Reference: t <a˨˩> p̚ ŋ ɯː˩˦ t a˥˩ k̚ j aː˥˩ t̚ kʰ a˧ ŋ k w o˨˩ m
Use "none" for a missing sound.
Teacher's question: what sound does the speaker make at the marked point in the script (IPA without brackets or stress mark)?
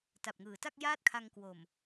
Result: a˨˩